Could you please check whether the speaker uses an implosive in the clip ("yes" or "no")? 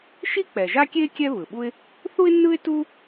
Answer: yes